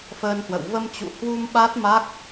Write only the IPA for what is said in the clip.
f əː˧ n h w ə̰˧˨ w v ə˧ m t͡ɕ ṵ˧˨ h w u˧ m ɓ a˦˥ t̚ m a˦˥ k̚

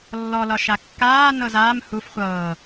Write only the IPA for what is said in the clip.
lː ɔ l ɒ ʃ a kː aː n ɤ z aː m h u f χʷ ɤː

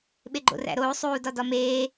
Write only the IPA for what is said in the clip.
ɓ e ɡ͡ǃ o̰ r æ̰ ɾ oː sˤ uː d ɒ d ɒ m eː

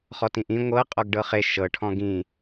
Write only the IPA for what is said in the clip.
χ ɔ t ĩ ʔ ĩ ŋʷ ɤ qʼ ɔ ɡ ɖ ɤ χ e ʃ ɤ ʈʰ ɔ̃ ɡ ĩ

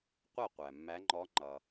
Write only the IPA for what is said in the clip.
qʷ æ˥˨ qʷ æ˩ mː æ˨˦ ŋ͡ǃ ɔ˨˦ ŋ͡ǃ ʌ˩

